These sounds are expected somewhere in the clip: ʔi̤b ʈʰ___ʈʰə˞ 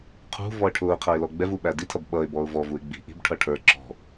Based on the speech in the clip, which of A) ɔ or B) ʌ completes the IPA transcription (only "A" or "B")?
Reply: B